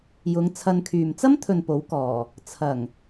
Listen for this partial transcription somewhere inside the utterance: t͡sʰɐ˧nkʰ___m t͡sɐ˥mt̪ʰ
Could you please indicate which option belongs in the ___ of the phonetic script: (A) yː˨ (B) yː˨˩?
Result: A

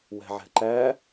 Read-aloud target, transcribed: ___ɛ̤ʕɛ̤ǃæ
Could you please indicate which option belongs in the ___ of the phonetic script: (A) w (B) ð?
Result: A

